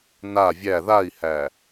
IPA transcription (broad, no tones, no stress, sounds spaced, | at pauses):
n a vʲ æ ð a i̯ h æ